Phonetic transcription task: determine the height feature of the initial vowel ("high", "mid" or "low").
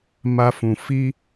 low